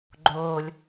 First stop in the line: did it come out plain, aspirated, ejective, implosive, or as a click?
click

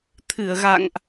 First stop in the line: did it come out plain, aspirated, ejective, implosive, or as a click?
aspirated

